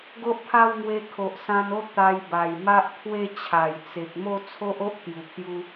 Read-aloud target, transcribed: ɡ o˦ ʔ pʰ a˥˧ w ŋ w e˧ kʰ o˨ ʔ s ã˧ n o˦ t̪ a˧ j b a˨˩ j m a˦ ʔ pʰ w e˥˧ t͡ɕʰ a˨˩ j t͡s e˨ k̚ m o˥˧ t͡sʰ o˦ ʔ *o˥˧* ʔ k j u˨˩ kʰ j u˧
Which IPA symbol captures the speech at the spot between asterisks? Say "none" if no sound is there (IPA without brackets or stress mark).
o˦